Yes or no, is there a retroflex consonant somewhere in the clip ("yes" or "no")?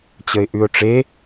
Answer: yes